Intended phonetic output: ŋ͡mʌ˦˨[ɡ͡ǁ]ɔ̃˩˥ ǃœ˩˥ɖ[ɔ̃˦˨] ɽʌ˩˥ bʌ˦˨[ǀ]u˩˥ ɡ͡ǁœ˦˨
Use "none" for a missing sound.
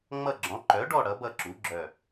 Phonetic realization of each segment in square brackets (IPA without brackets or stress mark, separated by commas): ɡ͡ǁ, ɔ˦˨, ǁ